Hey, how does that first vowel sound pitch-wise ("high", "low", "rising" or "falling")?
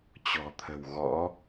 low